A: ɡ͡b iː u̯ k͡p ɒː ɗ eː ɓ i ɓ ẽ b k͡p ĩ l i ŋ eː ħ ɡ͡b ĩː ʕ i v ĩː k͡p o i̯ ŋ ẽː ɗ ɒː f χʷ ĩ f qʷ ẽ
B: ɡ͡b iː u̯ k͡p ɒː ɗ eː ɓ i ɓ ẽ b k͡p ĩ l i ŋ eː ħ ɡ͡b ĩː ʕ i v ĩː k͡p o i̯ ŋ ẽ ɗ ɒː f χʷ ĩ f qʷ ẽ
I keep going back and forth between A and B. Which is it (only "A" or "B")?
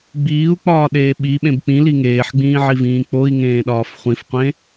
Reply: A